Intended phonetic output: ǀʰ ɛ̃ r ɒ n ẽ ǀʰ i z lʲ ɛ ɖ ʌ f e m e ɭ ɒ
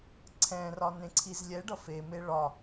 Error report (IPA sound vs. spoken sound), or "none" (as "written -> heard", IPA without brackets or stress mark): none